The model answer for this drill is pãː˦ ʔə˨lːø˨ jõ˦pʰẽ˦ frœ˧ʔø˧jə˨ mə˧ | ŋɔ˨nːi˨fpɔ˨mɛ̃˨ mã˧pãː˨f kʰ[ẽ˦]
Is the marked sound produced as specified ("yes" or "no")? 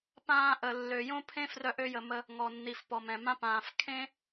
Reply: yes